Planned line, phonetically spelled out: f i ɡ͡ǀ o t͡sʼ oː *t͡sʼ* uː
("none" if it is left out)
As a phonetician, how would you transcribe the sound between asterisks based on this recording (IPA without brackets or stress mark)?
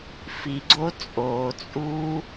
t͡sʼ